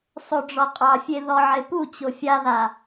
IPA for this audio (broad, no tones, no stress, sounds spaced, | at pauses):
sˤ o ɖ͡ʐ ɔ qʼ ɑ fʲ e ð ɔ ʕ e p u t͡ɕ o fʲ a ð a